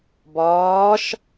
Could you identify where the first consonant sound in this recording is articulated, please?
labial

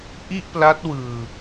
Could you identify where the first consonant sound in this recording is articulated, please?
glottal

